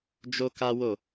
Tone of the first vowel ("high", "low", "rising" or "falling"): high